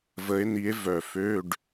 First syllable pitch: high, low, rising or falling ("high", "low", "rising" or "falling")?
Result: rising